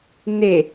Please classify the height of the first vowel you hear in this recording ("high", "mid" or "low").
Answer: mid